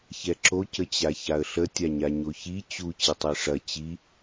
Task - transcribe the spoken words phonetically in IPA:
ç ɛ ǁ o c ə t͡ɕ a ç a ə̯ ɬ ə tʲ a ɲ a ɲ o ç i t͡ɕ u t͡ɕ i tˤ ɛ ʂ ɐ t͡ɕ i

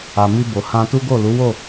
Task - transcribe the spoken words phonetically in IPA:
a˨ m i˧ b o˨ h ã˧ t u˦ ɡ o˦˨ l u˨˦ w o˦˨

